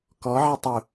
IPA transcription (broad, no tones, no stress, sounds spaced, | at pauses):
k ɔ ʕ e tˤ u